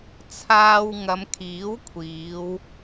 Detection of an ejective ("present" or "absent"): absent